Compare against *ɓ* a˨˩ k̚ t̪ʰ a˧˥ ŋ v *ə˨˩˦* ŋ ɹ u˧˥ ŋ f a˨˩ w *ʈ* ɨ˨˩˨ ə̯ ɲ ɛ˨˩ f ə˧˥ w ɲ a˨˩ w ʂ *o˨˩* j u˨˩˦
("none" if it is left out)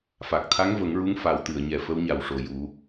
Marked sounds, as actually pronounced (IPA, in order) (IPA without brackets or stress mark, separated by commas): f, ə˨˩˦, t̪, o˨˩